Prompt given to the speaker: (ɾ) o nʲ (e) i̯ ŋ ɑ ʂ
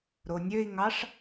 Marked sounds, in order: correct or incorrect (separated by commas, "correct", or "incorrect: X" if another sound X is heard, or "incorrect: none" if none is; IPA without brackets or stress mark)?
correct, incorrect: ø